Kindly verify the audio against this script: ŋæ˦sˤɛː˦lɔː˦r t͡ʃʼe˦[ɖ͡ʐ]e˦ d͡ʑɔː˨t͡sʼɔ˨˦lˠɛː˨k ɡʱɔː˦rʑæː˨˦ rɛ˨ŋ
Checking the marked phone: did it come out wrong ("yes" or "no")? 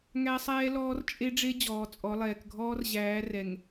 no